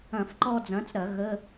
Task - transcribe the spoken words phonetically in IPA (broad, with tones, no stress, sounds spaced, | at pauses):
ɐ̃˧˩˧ f ǃ ɔ˧ d͡z ɐ̃˩˥ t͡s ɾ ɐ˧˩˧ ɣ ə˧˥˧